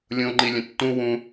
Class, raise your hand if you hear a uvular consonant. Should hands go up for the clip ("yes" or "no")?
no